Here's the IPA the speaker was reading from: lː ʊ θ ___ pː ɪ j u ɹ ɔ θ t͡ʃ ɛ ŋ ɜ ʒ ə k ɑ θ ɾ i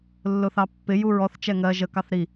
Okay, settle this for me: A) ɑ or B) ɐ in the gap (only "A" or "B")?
A